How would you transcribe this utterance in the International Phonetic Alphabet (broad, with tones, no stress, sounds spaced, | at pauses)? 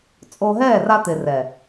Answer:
t͡sʼ oː˧ ɦ ɛː˦˨ r a˧ t̪ ɪ˨ r ɛ˨